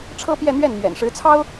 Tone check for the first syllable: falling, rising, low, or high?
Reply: high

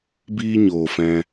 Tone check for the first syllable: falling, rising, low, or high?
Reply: high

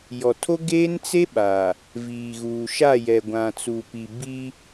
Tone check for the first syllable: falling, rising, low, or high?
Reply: low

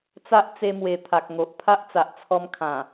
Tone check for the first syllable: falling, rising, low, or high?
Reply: high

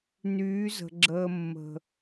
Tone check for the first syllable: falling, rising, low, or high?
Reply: rising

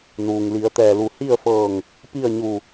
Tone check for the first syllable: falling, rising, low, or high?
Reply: low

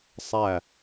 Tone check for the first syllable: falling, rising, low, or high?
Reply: falling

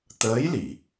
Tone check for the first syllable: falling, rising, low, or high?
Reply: rising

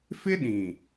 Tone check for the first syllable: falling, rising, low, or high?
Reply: high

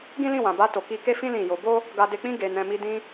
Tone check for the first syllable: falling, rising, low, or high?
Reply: high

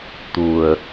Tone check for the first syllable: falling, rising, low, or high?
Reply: low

